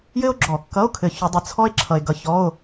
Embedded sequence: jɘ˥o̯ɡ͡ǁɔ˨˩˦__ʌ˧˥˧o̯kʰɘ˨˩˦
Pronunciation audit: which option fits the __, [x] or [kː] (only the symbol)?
kː